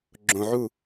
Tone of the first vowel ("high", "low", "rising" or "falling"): low